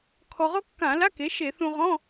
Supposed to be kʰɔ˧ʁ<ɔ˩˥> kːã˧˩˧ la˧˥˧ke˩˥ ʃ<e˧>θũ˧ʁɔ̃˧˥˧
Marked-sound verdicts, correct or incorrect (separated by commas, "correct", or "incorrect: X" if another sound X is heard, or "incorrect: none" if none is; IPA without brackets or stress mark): incorrect: ɔ˥, incorrect: e˧˩˧